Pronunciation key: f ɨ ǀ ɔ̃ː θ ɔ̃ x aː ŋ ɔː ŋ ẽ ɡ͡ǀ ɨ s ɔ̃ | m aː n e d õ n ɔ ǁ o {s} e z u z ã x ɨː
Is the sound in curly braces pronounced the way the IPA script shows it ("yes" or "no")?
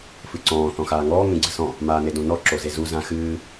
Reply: no